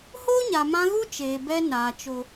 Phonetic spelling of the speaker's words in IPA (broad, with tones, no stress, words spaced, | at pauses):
hoː˦ɲa˨mã˧ ɣu˦ t͡ʃeː˨bɛ˧ naː˨ t͡ʃo˨